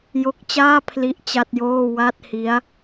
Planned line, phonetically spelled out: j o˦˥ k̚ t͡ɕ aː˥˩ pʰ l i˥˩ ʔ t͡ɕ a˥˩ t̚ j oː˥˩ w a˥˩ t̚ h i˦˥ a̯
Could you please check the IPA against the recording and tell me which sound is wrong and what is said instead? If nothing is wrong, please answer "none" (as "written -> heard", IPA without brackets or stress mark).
none